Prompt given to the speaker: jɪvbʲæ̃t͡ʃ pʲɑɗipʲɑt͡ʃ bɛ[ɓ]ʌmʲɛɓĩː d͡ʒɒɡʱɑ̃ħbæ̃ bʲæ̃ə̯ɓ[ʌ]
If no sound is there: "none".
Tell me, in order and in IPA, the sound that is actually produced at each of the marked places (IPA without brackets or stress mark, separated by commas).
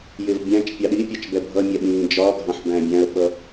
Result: bʱ, ʌ